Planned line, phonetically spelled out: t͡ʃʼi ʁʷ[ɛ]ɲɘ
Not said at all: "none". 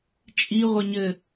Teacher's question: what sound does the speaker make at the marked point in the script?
ɛ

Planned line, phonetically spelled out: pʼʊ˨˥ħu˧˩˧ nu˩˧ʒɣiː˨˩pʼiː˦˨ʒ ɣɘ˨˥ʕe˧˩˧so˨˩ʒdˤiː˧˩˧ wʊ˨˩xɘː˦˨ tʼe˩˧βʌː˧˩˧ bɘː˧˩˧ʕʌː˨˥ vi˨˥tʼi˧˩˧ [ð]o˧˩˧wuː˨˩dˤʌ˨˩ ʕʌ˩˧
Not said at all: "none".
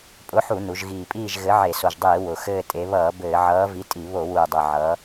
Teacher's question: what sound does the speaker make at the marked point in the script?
β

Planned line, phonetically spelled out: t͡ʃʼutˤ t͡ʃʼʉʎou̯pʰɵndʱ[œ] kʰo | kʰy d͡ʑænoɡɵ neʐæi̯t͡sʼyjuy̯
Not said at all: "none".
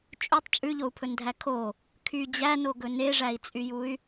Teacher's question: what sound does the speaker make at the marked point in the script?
æ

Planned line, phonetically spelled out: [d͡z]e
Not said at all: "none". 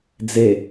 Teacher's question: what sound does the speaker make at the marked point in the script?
d͡z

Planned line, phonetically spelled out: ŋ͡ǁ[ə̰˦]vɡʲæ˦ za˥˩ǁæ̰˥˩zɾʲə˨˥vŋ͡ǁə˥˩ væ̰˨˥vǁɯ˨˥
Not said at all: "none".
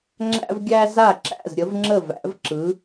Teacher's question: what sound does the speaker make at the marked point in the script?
æ̰˦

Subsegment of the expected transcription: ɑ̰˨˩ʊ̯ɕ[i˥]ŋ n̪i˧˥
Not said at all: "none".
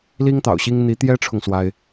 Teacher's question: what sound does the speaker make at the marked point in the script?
i˥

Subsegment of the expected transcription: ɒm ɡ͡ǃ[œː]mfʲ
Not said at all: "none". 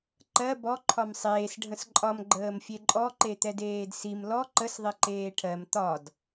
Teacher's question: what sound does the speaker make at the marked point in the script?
əː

